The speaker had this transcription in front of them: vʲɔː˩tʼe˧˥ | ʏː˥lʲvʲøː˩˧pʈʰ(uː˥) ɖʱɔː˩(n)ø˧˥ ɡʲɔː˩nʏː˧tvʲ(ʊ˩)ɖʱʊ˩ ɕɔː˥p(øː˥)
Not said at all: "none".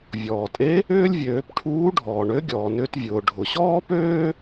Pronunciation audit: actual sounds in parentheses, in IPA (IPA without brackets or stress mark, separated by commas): uː˧˥, ɳ, ʊː˩, øː˥